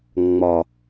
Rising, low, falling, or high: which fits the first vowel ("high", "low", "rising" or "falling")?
low